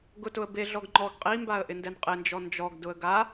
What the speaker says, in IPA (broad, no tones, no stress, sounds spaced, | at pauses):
ɡ ʊ t ʊ ə̯ b e ɮ ɔ ɡ ŋ͡ǃ ɔ ɡ qʼ i m b a ə̯ ʔ ɪ n d ɛ n qʼ ɪ n d͡ʒ ɔ n d͡ʒ ɔ ɡ d ʊ ə̯ ɡ a